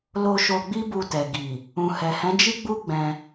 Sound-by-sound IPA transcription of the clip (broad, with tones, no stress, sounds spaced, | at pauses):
l o˧ ʃ o˧ ɡ͡b i˦ b u˧ t ɛ˨ ɡ i˨ | ũ˨ h ɛ˨ h ɛ̃˨˦ d͡ʒ i˦ ɡ͡b u˦ ɡ͡b ɛ̃˧